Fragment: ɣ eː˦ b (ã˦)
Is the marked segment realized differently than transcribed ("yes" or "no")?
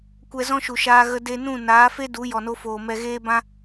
no